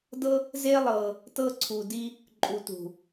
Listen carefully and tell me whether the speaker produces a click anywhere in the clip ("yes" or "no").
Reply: yes